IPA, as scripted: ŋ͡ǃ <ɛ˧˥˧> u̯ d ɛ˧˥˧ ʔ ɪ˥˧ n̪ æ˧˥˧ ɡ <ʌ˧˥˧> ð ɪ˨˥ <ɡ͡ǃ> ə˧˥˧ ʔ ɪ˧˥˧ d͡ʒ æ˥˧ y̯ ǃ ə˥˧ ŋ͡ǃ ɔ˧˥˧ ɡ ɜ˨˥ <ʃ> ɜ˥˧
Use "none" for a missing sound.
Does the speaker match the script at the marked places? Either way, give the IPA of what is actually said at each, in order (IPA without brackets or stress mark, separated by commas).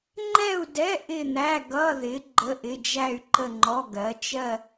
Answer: ɛ˥˧, ʌ˧˥˧, ɡ͡ǃ, t͡ʃ